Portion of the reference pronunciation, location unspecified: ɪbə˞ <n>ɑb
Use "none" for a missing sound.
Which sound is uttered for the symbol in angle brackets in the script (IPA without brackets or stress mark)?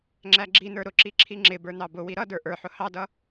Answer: n